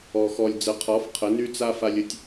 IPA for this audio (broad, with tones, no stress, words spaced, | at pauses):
ɔ˩xɔ˩lʲd͡zə˩˥qʰɔ˩˥f qʰə˩˥ny˥ t͡sa˥fa˧lʲə˥tʲ